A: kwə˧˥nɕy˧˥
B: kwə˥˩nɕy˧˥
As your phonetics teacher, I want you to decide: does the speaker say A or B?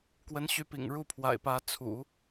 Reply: A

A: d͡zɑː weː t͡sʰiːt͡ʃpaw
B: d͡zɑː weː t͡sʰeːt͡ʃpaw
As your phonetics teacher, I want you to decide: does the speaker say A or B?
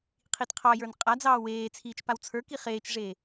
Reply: A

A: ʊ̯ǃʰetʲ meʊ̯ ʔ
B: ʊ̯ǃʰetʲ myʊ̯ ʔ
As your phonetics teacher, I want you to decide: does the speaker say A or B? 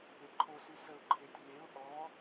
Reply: A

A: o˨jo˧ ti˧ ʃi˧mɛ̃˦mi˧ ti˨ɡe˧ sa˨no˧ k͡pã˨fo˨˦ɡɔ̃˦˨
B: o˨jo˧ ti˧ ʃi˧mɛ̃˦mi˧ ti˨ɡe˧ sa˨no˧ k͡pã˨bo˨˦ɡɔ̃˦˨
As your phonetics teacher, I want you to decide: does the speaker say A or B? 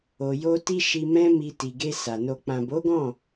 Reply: B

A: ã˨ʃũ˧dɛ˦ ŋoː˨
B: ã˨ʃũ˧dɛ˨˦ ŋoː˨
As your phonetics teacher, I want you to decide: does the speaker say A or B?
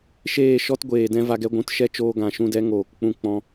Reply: B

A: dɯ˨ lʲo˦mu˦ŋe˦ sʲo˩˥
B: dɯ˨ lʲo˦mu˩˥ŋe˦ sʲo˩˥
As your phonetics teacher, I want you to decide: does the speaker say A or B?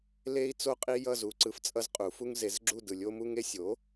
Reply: A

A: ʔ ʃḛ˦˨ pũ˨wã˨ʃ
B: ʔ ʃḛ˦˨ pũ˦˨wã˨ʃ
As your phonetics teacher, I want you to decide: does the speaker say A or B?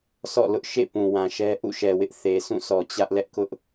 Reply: A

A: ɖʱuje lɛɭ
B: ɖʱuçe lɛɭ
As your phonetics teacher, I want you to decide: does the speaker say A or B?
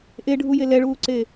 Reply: A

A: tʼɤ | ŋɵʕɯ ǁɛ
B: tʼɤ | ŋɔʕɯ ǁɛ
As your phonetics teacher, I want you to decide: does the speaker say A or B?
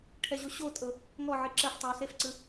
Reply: B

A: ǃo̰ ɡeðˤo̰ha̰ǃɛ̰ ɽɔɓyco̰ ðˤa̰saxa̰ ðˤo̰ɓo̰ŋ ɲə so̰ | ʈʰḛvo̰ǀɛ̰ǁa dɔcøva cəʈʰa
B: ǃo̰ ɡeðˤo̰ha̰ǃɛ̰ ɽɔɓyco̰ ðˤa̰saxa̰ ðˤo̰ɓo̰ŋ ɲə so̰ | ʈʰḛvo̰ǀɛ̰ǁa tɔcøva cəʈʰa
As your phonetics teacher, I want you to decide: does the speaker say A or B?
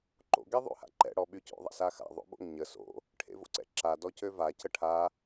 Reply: A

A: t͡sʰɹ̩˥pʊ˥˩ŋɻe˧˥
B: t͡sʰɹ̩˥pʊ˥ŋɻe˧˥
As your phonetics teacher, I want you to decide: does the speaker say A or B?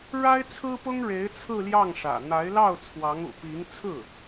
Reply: B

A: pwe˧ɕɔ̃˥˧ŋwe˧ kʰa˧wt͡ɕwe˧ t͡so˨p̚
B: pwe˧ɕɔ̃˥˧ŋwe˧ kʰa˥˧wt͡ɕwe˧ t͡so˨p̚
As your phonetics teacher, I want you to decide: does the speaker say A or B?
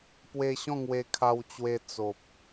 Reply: A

